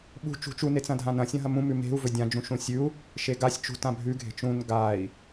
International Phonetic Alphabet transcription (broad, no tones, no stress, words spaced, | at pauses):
ɓṳ t͡ʃṳt͡ʃu net͡sɐ̃dʱãnɐ̃ sʲɐ̃ɦɐmũ mʉme̤u̯ vɵdʲã d͡ʒũʃũsʲʉu̯ | ʃeɡasʲ t͡ʃṳt ãbʱʉ ɡʱe̤t͡ʃũn ɡai̯